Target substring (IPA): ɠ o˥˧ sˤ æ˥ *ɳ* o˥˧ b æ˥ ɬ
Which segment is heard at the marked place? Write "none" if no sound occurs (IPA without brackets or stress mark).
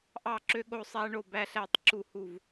ɳ